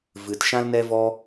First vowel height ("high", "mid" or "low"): high